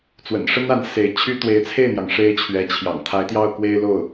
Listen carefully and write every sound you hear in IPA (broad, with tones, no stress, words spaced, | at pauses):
t͡swə̰˨˩nʂə˥na˧˥n se˧˥ɪ̯t͡ɕʰy˥ t̪we˧˥ɪ̯t͡sʰe˥˩ɪ̯n̪jɑ˩ŋ ʂe˥ɪ̯t͡ɕʰɥɛ˧˥t͡ɕʰjɑ̰˨˩ŋ t̪ʰa˧˥ɪ̯t̪jɑ˥˩ʊ̯kwe˥ɪ̯lo˥˩ʊ̯